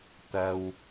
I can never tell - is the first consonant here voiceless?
yes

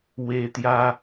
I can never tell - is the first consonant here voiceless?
no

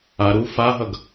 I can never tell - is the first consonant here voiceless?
no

